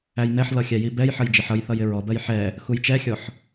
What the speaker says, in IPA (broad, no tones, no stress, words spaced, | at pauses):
æjnɛħlʌ xʲæjibɛjħʌj d͡ʒɪħʌjθʌj ɪɹɔbɜj ħɛ | xujt͡ʃɛxʲɔħ